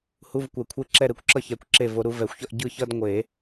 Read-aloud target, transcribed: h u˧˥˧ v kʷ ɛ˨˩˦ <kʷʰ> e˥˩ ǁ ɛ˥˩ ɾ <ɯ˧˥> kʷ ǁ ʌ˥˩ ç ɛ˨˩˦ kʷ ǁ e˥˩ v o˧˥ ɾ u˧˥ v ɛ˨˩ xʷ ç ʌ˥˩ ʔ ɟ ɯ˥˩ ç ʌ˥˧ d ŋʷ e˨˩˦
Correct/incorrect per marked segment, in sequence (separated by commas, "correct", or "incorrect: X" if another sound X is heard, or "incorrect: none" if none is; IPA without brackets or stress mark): correct, correct